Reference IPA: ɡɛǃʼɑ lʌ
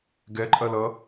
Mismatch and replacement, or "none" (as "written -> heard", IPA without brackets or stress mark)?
ɑ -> ɐ